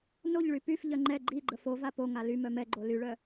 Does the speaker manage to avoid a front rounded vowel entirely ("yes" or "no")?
no